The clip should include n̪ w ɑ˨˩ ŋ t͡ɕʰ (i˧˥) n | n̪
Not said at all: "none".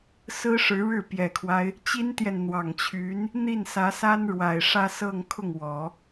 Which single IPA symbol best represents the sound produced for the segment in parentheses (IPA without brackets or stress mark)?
y˧˥